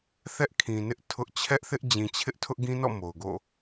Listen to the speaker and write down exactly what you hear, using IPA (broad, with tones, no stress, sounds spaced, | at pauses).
θ ɛ˦ ʔ kʰ ĩ˨ n ɪ˦ ʔ tʰ ʊ˦ ʔ t͡ɕʰ ɛ˦ ʔ θ ɪ˦ ʔ d͡ʑ ĩ˨ t͡ɕʰ ɪ˦ ʔ tʰ ʊ˦ ʔ ɡ ĩ˦ n ɔ̰˦˨ m o˨ ʊ̯ ɡ o̰˦˨